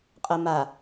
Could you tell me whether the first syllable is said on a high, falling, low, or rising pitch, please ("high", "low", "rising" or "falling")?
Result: low